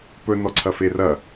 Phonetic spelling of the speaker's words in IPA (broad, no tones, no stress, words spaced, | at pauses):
pɵ nɔǀʰɐferɐ